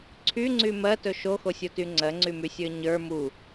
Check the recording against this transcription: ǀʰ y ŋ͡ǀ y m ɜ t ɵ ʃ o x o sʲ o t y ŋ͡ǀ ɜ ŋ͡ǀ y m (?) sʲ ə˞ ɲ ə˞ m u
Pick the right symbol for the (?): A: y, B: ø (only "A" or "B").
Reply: A